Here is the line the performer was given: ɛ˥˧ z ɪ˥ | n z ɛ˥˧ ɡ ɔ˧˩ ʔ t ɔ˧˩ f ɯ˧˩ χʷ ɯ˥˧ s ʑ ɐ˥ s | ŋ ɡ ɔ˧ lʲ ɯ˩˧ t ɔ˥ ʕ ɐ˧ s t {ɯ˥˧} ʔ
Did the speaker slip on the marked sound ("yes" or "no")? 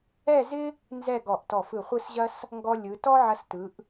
yes